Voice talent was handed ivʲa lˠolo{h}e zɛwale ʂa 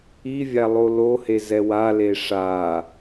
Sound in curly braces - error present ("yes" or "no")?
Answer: no